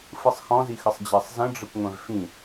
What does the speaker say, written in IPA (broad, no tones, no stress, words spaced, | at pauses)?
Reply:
fɯsˤxɔ̃zixəsˤ d͡ʑɜsˤzə̃ɖ͡ʐəkʷ ŋʷɛ̃vfĩ